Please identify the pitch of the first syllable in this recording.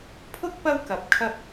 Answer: high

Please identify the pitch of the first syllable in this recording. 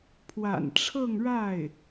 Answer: low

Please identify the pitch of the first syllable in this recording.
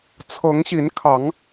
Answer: rising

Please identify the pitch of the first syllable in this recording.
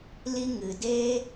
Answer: high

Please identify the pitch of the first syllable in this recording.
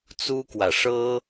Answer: high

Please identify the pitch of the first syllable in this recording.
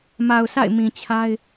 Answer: low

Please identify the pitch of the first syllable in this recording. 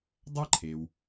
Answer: high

